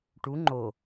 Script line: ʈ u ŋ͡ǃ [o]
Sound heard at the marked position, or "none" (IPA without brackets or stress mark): o